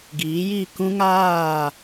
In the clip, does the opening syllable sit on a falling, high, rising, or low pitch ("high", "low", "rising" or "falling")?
rising